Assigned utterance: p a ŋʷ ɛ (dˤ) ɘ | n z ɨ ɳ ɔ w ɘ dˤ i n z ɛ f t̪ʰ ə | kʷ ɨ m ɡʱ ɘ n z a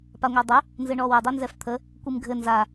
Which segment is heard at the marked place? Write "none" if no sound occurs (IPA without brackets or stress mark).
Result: dˤ